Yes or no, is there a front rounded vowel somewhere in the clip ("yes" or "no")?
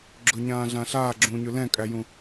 no